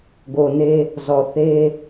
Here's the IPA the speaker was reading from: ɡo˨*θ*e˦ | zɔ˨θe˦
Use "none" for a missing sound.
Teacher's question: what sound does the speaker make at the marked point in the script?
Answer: n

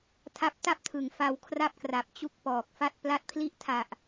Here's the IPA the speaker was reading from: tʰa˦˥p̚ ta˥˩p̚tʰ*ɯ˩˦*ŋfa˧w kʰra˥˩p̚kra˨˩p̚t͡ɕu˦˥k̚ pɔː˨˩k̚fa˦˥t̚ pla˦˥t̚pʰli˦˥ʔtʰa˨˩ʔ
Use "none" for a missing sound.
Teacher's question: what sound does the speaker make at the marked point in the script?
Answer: ɯ˨˩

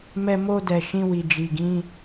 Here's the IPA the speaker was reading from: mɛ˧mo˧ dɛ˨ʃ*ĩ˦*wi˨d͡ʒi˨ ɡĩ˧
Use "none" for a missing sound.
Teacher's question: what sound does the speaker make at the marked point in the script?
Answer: ĩ˧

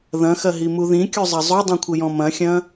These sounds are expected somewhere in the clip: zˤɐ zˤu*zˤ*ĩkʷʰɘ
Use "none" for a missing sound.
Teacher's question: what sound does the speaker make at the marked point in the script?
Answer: dˤ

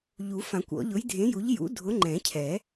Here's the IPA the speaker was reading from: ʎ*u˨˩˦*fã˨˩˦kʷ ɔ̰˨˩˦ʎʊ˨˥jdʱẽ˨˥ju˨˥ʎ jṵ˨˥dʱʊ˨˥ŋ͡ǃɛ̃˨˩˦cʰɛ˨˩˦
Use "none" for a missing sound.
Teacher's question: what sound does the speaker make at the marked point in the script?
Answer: u˨˩˦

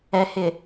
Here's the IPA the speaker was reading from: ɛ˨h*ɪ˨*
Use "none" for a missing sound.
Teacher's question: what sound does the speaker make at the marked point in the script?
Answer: ɪ˨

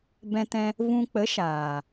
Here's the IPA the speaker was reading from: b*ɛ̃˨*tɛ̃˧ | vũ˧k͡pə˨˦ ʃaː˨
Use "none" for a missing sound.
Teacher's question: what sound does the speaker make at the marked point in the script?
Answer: ɛ̃˧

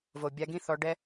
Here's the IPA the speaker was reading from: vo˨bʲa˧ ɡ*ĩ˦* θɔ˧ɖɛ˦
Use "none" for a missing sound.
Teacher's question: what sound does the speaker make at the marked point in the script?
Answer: ĩ˦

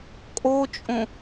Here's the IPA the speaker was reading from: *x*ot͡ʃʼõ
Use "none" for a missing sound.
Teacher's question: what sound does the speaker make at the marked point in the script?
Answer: kʼ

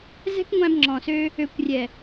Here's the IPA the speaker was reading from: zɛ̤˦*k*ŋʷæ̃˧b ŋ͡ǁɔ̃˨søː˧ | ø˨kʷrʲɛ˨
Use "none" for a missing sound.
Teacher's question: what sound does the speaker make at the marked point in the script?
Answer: k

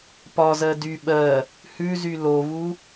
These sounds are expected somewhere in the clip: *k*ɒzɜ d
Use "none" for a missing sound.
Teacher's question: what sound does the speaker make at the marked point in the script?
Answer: p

